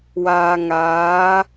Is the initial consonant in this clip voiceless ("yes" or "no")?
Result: no